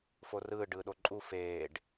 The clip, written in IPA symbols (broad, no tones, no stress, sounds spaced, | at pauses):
f o r ɯː ɖ ɯː ɗ o ǃʼ u f eː ɖ